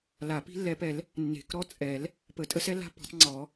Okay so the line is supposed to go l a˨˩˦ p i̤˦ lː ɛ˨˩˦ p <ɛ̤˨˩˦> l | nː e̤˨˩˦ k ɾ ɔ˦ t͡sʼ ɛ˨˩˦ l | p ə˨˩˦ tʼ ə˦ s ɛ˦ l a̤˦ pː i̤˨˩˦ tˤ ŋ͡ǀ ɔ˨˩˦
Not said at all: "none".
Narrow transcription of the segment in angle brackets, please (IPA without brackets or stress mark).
ɛ˨˩˦